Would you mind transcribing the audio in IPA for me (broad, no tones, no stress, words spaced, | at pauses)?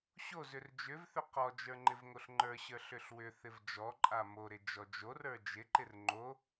ɕozʏr d͡ʒʏvθʏ qɔd͡ʒə˞ ŋ͡ǃɪvŋoɬŋ͡ǃə˞ɕə˞ ɬʏɬwʏθɪv d͡ʒɔǃʼa moɾɪ d͡ʒɔd͡ʒorə˞ d͡ʒɪǃɪr ŋ͡ǃo